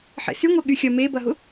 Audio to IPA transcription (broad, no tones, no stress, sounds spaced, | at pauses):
ħ ḛ s y ŋʷ ɛ ɠ y xʲ ɐ m e b ɐ ɦ ʊ